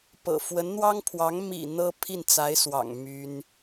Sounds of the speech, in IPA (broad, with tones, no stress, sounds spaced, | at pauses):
p ɤ̰˨˩ f w ə˧˥ n n̪ w ɑ˥ ŋ pʰ w ɑ˧˥ ŋ m ḭ˨˩ n̪ ɤ˥ pʰ i˥˩ n t͡s a˧˥ ɪ̯ s w ɑ̰˨˩ ŋ m y˥ n